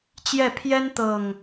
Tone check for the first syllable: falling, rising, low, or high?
falling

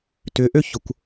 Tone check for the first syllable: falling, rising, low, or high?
rising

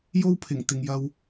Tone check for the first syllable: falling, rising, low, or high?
high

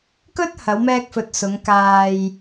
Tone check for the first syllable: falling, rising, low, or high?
high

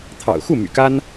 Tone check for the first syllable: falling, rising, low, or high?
low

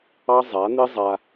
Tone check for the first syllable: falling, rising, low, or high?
high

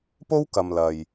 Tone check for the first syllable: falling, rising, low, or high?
high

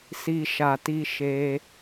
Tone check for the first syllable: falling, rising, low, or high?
low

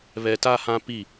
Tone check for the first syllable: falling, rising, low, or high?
low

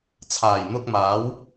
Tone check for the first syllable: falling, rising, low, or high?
low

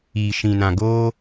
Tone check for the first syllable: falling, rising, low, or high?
low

